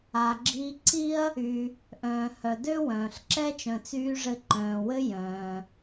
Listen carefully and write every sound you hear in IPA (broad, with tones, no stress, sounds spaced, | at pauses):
a˩ ɡ͡ǁ i˧ ǀ i˥ ɐ̯ | y˩ | ʔ œ̃ː˩ h œ˩ d ø˥ w œ̃ː˩ ɬ ǁ ɛ˥ t͡ʃ œ̃˩ t͡s yː˧ ʐ ɘ˧ ǃ œ̃ː˩ w ɘ˥ j œ̃ː˩